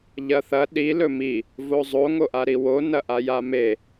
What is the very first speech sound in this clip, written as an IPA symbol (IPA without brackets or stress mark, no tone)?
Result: ʎ